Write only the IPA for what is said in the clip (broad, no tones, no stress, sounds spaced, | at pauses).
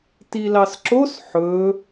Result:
t i l ɑ s ǁ o s ħ ɵ